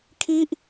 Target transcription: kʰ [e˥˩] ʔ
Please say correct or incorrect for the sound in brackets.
incorrect